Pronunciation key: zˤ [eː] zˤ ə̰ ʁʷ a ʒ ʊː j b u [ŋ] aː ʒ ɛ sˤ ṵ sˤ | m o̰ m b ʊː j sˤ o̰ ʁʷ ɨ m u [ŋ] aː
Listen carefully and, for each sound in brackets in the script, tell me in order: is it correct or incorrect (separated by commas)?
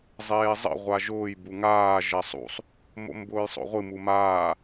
correct, correct, incorrect